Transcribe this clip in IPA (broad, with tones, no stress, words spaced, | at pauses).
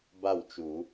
ba˥˩wt͡ʃu˨˩˦